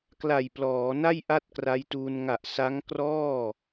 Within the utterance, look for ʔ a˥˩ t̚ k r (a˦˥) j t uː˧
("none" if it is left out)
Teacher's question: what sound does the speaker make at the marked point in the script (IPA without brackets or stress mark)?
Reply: a˦˥